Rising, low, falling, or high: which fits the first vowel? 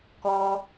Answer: high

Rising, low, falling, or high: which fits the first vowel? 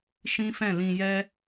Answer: high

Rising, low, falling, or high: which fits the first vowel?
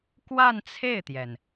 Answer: falling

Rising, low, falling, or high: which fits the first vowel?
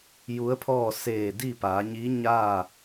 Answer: rising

